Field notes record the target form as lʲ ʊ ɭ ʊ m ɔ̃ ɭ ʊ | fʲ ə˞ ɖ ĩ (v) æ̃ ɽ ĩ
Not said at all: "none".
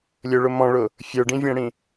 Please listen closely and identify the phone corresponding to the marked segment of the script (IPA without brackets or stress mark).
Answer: vʲ